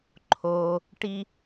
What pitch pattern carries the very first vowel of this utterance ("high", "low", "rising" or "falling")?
low